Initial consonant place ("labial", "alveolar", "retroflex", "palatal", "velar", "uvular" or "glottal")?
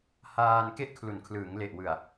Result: glottal